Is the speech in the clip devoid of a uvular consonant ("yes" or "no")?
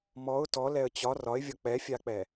yes